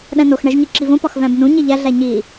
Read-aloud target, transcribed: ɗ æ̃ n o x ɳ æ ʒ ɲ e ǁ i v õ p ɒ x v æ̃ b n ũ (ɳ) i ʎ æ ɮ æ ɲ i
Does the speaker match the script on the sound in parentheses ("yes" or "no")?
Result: no